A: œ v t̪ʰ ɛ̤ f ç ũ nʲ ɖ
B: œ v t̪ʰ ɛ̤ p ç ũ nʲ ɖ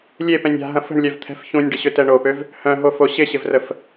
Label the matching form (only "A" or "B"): A